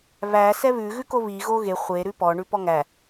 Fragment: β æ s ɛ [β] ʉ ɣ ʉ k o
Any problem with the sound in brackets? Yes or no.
no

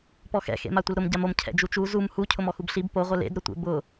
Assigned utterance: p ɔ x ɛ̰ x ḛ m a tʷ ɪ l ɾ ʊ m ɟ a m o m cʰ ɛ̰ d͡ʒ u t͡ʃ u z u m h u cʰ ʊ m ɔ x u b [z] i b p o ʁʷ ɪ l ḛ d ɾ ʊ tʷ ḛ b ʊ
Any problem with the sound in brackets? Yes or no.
yes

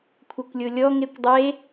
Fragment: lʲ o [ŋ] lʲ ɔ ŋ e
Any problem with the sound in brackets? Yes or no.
yes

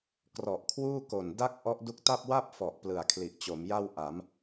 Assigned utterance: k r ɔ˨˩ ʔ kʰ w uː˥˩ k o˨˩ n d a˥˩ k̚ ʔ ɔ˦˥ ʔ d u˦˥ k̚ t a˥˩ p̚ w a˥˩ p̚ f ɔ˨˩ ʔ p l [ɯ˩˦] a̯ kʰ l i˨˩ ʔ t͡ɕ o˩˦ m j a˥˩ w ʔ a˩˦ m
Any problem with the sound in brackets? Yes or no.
yes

